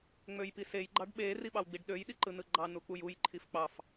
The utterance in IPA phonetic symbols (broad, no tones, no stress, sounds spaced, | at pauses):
ŋ͡m ø j p i s e j ɡ͡ǃ ɑ ɖ ɓ e r i ɓ ɑ w ɡ͡b i ɖ ɗ ø j ɗ i ǃ ɯ n ɯ ɡ͡ǃ ɑ n u k͡p u j u j ǃʰ i f k͡p ɑ f